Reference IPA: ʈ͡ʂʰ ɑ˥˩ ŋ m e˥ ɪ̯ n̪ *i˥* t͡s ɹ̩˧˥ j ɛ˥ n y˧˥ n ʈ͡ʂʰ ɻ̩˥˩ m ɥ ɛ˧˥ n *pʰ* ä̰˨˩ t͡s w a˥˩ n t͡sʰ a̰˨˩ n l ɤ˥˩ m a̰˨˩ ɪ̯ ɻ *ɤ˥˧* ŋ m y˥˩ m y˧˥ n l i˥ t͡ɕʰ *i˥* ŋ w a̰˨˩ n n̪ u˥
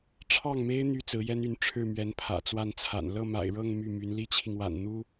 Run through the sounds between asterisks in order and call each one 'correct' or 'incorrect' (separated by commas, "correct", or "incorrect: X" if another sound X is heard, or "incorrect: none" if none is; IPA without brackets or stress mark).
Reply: incorrect: y˥, correct, correct, incorrect: i˨